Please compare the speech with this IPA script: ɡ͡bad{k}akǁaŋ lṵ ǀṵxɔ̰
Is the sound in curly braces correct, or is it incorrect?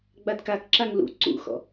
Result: correct